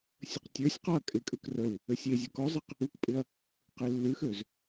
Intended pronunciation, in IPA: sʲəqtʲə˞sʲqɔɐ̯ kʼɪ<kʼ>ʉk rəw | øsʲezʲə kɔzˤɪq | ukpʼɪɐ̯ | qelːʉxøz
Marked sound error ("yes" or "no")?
no